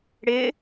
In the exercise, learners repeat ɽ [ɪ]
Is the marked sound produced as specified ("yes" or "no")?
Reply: yes